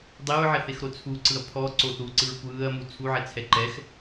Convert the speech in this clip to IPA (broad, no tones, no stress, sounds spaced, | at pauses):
dˤ e ɹ ʕ ɛ θ e x ɾ o t͡sʰ u ǀ ɯ ɐ̯ pʰ ɔ ǀ o θ u ǀ ɯ ɹ kʷ ɯː ɐ̯ m u t͡sʰ u ʕ ɛ t͡sʰ ɛ ǃ ɛ x